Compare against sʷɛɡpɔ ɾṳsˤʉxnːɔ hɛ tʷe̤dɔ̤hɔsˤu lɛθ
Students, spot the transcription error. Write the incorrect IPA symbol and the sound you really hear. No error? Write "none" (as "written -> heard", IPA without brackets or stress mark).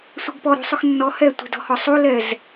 θ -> z